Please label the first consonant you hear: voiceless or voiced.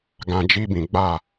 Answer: voiced